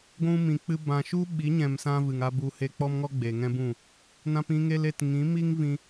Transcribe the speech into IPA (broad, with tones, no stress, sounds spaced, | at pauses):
ɡʷ ũ˧ m ĩ˨ k͡p ɨ˧ b ã˨ ʃ u˦ ɓ i˨˦ ɲ ɛ̃˨ m s ã˦ v ɨ˨ ŋ a˦ b u˧ h e˧ k͡p ɔ˦ m ŋ ɔ˦ ɡ͡b e˨ ŋ ɛ̃˦ b ũ˦˨ | n ã˧ p ĩ˧ ŋ e˧ l e˨ t ŋ ĩ˨˦ m i˦ ŋ v ĩ˧